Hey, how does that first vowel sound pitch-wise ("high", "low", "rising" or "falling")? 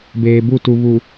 low